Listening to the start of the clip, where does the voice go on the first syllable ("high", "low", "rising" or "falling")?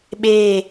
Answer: falling